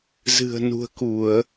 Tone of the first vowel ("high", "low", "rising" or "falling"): low